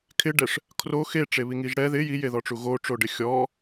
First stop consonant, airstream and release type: aspirated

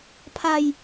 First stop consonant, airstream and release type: aspirated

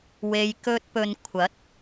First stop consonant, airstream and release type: plain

